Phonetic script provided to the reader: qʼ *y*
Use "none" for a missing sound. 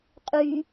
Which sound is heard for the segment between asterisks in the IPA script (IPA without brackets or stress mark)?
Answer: y